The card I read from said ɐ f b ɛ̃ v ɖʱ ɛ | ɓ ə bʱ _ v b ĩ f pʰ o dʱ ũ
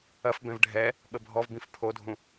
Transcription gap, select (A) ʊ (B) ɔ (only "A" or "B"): B